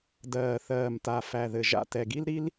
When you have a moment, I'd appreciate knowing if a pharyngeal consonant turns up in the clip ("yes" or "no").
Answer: no